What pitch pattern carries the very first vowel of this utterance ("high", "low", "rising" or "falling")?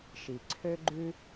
low